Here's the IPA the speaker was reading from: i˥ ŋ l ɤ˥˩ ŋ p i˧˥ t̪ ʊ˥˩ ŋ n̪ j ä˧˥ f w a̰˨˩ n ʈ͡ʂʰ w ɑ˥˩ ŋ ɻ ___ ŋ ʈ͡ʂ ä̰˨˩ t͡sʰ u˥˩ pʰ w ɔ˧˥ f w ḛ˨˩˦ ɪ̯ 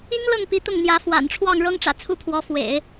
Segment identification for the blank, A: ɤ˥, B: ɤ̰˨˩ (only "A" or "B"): A